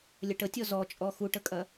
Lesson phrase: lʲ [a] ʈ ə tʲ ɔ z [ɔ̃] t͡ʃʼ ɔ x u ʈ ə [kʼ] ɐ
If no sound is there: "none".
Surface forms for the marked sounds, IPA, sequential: ə, ɔ, kʼ

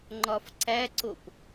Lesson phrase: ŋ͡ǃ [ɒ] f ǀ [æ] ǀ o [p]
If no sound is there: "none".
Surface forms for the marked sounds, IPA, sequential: ɒ, æ, p

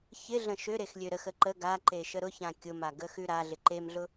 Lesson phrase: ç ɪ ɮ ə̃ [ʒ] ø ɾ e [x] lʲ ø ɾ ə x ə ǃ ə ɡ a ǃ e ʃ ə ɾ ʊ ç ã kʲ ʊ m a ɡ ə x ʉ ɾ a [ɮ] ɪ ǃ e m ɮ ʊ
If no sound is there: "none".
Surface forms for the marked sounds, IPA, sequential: ʃ, x, ɮ

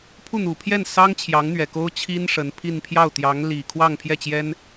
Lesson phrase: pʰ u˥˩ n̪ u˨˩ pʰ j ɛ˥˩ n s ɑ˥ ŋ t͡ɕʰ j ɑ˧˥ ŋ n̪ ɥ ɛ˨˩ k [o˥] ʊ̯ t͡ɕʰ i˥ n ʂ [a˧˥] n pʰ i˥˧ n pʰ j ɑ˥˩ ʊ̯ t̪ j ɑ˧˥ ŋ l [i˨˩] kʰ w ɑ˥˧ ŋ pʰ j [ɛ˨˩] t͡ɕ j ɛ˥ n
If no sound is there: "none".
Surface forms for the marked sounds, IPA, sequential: o˥, ə˧˥, i˨˩, ɛ˥˩

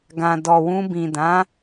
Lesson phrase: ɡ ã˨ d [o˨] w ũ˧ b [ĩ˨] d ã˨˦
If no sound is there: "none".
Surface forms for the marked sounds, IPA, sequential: ɔ˨, ĩ˨

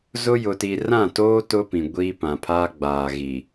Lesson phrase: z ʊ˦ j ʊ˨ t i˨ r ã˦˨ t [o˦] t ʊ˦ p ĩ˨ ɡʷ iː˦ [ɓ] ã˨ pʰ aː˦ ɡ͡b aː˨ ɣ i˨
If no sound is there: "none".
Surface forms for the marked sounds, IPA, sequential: oː˦, p

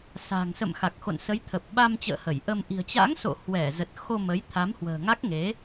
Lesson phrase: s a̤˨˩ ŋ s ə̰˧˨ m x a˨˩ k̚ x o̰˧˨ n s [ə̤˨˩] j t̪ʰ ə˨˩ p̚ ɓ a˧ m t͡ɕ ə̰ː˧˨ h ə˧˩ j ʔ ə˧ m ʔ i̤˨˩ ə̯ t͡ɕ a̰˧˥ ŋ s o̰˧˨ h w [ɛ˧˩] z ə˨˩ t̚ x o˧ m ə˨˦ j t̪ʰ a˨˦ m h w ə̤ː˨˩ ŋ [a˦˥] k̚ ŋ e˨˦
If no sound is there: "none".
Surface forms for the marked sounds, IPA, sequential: ə˨˦, ɛ˧˩, a˦˥

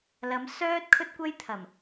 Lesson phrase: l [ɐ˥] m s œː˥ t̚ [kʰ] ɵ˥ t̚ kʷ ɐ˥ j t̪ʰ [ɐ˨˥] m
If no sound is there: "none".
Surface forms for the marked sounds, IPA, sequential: ɐ˨˧, kʰ, ɐ˨˩

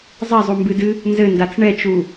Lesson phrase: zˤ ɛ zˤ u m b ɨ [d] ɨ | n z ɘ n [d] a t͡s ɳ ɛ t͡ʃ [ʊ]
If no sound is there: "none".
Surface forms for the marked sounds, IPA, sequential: d, d, u

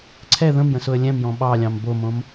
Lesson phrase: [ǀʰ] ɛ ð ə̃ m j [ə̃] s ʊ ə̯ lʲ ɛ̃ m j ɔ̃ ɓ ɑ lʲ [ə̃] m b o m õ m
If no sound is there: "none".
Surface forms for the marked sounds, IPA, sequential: ǀʰ, ə̃, ɑ̃

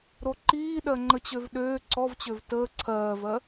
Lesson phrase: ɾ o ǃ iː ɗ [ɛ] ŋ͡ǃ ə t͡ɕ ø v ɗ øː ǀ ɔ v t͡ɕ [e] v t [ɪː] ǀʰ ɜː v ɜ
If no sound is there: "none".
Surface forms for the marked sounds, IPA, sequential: ɜ, ø, əː

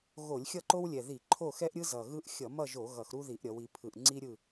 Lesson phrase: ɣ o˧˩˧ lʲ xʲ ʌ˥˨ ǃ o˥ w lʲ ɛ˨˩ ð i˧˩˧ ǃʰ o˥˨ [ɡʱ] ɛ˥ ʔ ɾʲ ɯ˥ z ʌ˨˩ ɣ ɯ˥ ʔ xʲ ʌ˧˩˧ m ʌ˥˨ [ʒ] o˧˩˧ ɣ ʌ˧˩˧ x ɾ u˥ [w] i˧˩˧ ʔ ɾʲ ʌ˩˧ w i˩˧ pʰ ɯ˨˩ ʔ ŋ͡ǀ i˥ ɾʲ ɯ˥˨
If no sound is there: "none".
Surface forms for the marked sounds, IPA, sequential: x, ʒ, ð

